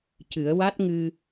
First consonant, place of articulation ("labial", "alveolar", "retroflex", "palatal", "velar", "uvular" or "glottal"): palatal